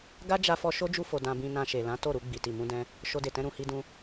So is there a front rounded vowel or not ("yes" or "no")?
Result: no